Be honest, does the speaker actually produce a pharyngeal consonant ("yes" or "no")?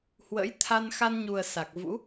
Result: no